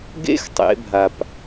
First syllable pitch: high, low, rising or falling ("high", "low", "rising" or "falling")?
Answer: high